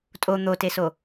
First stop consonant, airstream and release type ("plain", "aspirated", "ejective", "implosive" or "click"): ejective